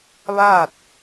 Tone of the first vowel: falling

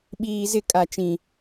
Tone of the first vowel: low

